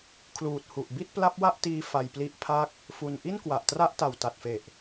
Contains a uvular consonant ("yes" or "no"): no